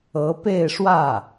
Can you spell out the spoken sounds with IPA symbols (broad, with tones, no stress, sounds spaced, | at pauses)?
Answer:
ɤ˧˥ p e˥˧ ɪ̯ ʂ w ä˥˩